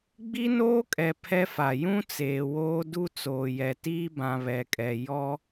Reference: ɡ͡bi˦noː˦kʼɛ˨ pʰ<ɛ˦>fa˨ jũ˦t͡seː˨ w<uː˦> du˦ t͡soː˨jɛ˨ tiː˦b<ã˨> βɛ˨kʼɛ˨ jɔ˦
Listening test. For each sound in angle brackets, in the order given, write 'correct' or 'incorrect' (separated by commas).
correct, incorrect, correct